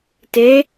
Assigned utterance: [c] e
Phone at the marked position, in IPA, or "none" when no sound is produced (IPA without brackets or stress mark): t